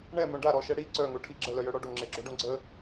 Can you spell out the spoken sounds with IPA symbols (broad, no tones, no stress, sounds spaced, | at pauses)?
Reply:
ɳ ɛ m œ̃ ɖ a ɾ ɔ ʃ ɛ ɽ i ǀ œ ŋ o ʈʰ i ɡ͡ǁ ə l œ j œ ɽ ɔ ɖ o ŋ͡ǁ e ɡ͡ǁ o ɖ õ ɡ͡ǀ ə